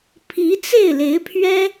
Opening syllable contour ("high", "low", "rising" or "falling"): rising